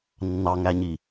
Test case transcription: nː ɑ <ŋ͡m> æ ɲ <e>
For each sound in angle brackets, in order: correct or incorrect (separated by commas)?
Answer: incorrect, incorrect